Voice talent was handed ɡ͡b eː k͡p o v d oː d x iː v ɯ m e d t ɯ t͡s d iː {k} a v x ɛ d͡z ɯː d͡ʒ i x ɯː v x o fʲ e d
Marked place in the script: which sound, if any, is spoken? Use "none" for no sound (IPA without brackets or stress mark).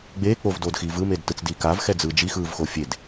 k